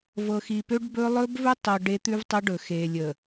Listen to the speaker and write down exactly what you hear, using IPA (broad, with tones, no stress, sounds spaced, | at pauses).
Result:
v ɤ˨ x i˨ p ø˦ ɖ b ɵ˦ lˠ ɵ˦ b v ɵ˦ tˤ o˨ ɖ e˦ t̪ ʉ˦ v tˤ ə˦ ɖ ɵ˨ x e˨ lʲ ə˨